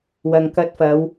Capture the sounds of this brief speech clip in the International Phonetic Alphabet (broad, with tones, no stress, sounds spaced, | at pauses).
w ɐ˨ ŋ k ɐ˧ t̚ f ɐ˨˧ w